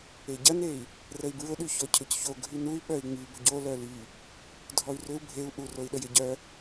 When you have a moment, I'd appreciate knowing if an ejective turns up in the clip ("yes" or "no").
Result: no